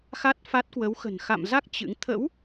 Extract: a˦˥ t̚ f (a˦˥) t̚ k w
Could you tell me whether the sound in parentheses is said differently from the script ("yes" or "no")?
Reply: no